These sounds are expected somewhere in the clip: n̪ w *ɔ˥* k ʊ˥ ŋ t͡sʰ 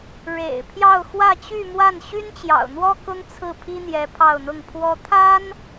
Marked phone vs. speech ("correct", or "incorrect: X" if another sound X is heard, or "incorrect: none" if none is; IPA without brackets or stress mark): correct